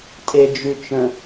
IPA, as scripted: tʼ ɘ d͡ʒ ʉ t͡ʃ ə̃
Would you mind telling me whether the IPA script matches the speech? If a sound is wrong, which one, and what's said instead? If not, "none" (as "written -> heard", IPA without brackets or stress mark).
ɘ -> e